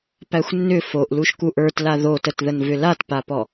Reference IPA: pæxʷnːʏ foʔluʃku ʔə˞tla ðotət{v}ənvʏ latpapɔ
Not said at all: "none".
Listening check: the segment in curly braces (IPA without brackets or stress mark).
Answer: ð